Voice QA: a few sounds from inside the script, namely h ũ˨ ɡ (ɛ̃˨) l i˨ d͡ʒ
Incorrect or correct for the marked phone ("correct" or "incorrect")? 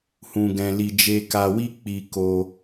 correct